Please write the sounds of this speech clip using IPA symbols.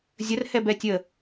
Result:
zʲ ə r h ɛ b ɛ tʲ ə

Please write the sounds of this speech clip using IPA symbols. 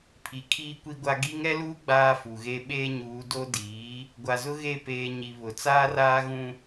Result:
pʰ i˨ kʰ iː˦ kʷ i˦ ɡʷ a˦ ɡ i˦ ŋ ɛ˦ l uː˦ ɡ͡b aː˦ f u˨ ɣ e˦ ɓ eː˦ ɲ uː˨˦ d o˦ d iː˨˦ | ɡʷ a˨ z ʊ˦ ɣ e˦˨ p eː˨ ɲ i˨ β ʊ˨ t͡s aː˦ r aː˦ ɣ ũ˦

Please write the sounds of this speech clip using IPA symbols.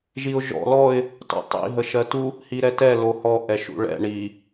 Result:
ʒ i ʊ̯ ʒ ɔ̰ l ɔ ɪ̯ | t ɔ̰ tˤ ḭ ɦ ə ʃ ɜ t u | h i ɾ ɛ t ɛ l o h ɔ ʔ ɛ ʃ ṵ ɭ ɛ̰ ɳ i

